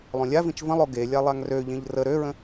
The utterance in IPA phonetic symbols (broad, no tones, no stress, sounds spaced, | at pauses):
lˠ õ lʲ a v ĩ t͡ʃ v ə̃ lˠ o ɡ e lʲ a lˠ a ŋ r ø ʎ ẽ ʎ r ə ɾ ø ɹ ə̃